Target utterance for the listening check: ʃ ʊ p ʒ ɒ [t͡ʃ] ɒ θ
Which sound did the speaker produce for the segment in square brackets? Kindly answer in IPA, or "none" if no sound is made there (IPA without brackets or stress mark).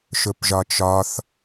t͡ʃ